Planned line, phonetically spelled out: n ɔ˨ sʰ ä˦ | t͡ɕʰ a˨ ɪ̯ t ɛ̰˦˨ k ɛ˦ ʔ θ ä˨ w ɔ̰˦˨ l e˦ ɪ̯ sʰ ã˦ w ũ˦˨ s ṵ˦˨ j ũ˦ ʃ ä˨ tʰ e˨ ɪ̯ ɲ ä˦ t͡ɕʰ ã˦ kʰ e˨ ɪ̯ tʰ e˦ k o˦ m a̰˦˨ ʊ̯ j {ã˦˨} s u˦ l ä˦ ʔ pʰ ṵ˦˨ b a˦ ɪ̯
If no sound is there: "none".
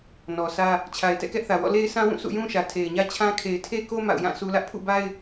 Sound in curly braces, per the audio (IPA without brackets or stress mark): ã˦˨